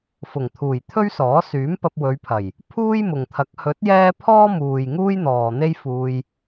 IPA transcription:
f ʊ˨˩ ŋ t̪ʰ uː˨˩ j t̪ʰ ɵ˥ ɥ s ɔː˨˥ s yː˨˥ m p ɐ˧ p̚ w ɵ˨˧ ɥ pʰ ɐ˨˩ j | pʰ uː˥ j m ʊ˨ ŋ t̪ʰ ɐ˨˥ k̚ h ɵ˨˥ t̚ j ɛː˥ pʰ ɔː˥ m uː˨ j ŋ uː˥ j n̪ ɔː˨ n̪ e˥ j f uː˧ j

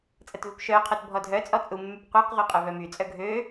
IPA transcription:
t͡sʼ ə t v ø p ʃ œ qʰ o t bʱ ɔ dʱ œ t͡sʼ ɔ t͡sʼ u mː y p qʷ œ q ʁʷ e qʼ œ v œ m y t͡sʼ œ ɡʱ ø

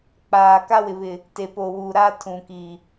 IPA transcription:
k͡p aː˨ k a˦ w ɪ˨ β ɪ˨ | t e˨ p o˨ w u˨ ɾ aː˦ tʰ ũ˨ k i˨

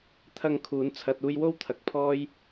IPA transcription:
t̪ʰ ɐ˨ ŋ kʰ uː˨˧ n t͡sʰ ɐ˧ t̚ uː˧ j w o˥ w t̪ʰ ɐ˨ k̚ pʰ ɔː˥ j

